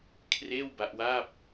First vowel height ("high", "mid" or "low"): mid